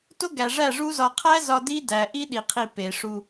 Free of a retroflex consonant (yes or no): no